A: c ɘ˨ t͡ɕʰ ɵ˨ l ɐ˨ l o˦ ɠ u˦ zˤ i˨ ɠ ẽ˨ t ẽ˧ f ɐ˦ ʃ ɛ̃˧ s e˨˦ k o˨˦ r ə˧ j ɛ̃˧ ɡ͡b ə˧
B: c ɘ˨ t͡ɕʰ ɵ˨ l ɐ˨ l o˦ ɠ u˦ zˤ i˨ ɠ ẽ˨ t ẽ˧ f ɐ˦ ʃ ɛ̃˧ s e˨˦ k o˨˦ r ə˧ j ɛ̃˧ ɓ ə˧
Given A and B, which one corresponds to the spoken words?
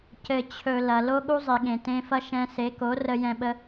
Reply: B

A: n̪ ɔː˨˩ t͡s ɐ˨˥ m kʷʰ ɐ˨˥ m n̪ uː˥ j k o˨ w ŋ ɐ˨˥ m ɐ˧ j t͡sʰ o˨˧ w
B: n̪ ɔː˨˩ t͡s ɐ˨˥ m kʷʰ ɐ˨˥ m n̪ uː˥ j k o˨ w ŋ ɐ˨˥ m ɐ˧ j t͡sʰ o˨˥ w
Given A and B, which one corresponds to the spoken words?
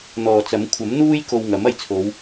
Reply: A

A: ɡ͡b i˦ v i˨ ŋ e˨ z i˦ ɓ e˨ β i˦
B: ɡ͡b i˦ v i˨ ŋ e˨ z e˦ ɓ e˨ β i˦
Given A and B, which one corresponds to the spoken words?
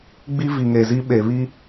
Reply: A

